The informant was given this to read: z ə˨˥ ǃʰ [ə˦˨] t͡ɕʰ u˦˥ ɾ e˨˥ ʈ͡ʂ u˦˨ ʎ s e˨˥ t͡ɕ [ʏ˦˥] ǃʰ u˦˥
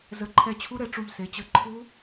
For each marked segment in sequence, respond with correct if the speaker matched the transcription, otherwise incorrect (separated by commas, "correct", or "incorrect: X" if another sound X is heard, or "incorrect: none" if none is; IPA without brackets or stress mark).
incorrect: ɛ˦˨, incorrect: ə˦˥